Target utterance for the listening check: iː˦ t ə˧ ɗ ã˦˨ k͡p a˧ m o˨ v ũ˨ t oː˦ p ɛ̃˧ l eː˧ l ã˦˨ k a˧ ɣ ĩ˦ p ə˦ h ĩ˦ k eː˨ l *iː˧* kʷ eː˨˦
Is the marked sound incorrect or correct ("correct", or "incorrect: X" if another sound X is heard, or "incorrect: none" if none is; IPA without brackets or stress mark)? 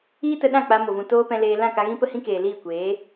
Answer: incorrect: iː˦˨